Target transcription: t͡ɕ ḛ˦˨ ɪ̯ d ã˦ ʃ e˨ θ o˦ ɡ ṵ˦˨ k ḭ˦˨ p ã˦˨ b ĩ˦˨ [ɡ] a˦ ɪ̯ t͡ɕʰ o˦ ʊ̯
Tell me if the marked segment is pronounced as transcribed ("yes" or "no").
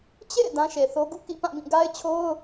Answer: yes